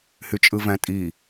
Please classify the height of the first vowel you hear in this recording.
high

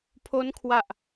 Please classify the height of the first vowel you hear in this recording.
mid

